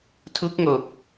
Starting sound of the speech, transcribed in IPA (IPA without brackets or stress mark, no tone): tʰ